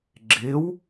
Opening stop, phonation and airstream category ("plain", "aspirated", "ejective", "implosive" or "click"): click